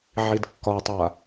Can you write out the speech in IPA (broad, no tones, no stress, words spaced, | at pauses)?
ʕidkːɒtˤa